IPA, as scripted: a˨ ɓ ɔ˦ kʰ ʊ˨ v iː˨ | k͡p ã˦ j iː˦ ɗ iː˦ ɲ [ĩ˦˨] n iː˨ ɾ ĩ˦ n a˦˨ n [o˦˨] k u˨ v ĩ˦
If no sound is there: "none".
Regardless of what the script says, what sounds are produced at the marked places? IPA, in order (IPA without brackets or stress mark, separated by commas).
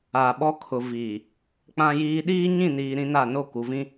ĩ˦˨, o˦˨